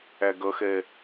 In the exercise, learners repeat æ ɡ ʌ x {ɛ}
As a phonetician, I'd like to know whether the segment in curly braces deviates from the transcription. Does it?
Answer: no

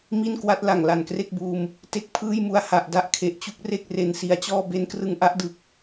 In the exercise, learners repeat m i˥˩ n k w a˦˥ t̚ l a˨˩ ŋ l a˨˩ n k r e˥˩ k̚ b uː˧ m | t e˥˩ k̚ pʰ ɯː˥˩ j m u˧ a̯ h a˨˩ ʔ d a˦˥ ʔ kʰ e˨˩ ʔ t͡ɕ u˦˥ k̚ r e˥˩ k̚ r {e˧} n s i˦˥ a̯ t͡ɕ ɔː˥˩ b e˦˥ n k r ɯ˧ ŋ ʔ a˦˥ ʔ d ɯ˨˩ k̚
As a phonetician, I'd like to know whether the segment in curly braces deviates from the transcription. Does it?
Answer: no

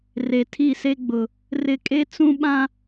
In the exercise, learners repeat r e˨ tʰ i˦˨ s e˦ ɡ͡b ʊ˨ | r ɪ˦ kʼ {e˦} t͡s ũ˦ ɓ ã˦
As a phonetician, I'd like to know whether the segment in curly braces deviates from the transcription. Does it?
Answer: no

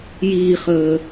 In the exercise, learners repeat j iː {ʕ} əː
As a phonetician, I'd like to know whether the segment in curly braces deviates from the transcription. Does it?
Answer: yes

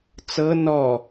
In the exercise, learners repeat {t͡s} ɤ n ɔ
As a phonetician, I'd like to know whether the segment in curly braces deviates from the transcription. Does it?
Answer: no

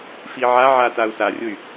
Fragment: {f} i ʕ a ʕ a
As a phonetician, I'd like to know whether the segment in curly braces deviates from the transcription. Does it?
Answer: no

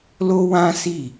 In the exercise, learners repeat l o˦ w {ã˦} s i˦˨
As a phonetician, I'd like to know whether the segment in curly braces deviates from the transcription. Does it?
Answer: no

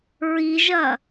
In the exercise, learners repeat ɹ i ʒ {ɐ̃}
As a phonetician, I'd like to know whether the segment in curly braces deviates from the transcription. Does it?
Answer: yes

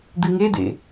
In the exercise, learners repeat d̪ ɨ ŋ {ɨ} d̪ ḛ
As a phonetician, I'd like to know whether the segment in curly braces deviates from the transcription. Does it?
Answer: yes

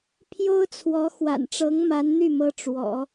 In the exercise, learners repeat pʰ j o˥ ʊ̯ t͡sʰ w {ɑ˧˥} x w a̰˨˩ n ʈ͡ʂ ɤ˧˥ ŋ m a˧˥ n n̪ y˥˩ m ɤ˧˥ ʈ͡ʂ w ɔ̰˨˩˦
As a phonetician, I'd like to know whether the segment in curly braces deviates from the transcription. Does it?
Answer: yes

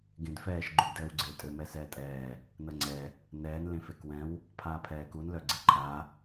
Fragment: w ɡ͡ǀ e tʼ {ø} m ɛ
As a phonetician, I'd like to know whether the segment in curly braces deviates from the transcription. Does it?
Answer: no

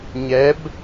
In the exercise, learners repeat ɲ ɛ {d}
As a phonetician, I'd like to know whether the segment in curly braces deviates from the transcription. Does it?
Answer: yes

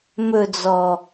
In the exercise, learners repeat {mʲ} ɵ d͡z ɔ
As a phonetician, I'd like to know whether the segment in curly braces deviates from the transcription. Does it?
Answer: yes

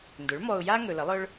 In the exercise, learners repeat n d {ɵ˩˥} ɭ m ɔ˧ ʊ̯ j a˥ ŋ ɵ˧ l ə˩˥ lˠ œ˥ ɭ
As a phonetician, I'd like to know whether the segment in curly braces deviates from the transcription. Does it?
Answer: no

